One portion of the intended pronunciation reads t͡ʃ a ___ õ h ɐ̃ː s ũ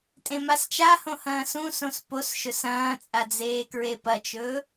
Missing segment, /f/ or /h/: h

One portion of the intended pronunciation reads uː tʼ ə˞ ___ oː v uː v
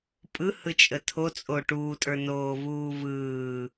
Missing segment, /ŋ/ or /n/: n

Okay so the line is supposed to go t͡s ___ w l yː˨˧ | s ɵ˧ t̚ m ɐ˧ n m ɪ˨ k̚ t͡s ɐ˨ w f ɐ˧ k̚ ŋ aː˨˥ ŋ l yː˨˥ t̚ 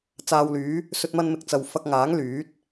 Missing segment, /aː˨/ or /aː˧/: aː˨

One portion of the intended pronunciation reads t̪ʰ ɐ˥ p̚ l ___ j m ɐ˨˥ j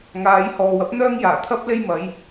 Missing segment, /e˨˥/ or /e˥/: e˥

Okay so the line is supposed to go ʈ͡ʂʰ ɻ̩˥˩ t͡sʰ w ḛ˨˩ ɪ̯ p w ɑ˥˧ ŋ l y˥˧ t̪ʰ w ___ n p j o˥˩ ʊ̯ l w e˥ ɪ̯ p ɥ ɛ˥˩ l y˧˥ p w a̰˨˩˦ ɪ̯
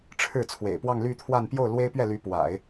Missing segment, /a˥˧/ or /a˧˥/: a˥˧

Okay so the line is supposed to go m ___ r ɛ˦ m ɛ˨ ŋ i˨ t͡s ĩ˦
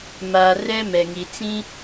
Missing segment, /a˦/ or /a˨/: a˨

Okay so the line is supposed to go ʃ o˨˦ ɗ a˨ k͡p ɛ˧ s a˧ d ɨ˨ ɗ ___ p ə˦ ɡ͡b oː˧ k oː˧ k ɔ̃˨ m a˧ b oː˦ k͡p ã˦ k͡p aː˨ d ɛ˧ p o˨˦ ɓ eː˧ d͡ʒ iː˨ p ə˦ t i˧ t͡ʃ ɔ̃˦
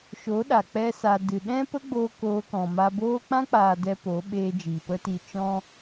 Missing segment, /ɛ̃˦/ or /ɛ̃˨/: ɛ̃˦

